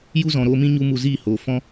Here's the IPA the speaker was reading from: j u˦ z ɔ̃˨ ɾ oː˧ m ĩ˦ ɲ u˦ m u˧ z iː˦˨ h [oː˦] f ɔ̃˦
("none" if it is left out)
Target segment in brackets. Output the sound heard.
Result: oː˨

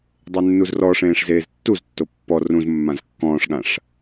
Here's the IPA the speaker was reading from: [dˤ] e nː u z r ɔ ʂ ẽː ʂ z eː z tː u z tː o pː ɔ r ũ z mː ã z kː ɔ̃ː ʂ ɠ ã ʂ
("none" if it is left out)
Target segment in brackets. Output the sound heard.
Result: dˤ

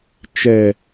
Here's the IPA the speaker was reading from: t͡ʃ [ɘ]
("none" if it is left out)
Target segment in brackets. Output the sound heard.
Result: ɛ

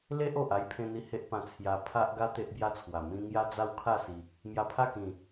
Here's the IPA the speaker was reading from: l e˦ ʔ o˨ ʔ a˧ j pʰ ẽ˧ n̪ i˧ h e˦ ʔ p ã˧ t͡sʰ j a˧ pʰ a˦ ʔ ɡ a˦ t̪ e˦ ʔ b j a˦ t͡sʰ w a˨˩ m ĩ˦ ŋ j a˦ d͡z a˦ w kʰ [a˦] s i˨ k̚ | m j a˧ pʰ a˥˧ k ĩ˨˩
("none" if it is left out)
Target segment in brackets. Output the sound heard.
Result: a˥˧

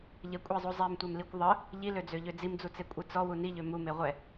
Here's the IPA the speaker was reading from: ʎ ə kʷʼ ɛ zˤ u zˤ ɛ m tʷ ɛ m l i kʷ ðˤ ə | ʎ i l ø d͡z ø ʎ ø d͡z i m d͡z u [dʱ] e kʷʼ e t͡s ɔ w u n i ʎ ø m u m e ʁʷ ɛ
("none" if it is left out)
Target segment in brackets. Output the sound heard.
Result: t͡s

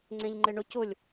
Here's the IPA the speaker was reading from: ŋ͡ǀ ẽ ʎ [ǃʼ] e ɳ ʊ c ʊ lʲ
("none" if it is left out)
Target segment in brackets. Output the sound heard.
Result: ŋ͡ǃ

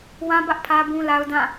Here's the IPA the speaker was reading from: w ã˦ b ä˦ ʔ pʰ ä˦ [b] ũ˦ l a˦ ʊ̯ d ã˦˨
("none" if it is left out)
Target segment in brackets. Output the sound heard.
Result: b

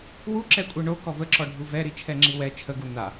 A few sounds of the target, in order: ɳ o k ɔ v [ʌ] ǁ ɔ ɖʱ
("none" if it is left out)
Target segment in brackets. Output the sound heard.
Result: ə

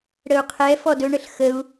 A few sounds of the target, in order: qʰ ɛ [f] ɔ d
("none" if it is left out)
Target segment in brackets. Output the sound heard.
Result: f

